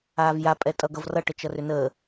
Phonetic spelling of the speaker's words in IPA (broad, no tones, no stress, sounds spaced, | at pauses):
aː v j a pʼ ɛ tʼ ʌ ɡ ʌ v r ʌ ʈ ə t͡ʃ ʌ r ʏ n əː